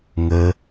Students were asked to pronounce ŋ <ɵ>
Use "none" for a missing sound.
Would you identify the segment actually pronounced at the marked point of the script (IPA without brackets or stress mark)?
ə